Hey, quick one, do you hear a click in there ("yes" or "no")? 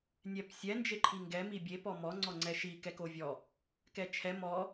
yes